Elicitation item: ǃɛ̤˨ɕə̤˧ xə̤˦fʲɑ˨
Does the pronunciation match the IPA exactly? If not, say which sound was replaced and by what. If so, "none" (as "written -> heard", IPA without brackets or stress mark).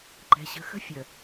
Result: ɑ˨ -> ə˨